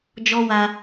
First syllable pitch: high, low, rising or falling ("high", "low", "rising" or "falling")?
high